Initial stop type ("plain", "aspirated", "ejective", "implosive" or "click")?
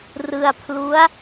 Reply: aspirated